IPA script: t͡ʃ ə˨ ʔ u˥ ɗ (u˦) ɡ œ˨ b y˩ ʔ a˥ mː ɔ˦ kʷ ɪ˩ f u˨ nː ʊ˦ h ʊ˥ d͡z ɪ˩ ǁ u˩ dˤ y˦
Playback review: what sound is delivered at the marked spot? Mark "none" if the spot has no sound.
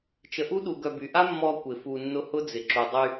u˨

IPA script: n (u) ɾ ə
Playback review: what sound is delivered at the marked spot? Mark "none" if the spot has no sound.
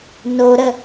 o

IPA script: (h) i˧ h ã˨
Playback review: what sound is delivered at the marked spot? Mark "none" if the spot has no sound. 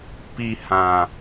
p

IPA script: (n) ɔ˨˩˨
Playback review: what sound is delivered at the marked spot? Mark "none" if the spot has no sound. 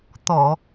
t̪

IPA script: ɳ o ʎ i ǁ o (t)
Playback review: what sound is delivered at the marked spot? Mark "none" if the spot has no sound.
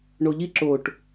ʈ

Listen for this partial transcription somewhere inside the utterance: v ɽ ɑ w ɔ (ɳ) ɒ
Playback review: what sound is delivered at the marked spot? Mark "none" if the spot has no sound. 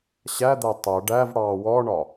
ɳ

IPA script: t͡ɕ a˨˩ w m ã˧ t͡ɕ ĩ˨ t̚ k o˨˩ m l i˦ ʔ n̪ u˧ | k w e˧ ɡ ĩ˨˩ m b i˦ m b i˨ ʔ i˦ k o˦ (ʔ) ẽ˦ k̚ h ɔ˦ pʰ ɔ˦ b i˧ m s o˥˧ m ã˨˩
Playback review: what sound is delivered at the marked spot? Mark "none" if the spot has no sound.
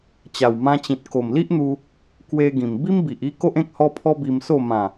ʔ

